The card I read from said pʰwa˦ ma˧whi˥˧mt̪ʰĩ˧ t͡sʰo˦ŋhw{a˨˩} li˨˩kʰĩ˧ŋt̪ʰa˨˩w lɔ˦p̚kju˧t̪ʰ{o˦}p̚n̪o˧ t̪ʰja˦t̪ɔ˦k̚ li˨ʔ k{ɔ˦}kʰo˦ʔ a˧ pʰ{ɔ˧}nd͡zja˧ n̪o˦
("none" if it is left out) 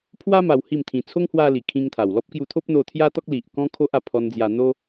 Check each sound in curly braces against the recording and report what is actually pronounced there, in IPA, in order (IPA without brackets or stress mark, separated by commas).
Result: a˧, o˦, ɔ̃˦, ɔ˧